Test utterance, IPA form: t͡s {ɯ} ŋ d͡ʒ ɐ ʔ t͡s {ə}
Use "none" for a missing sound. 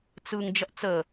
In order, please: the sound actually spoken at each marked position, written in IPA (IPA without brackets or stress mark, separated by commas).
ɯ, ə